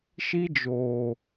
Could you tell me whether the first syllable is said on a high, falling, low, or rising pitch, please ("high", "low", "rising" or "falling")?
high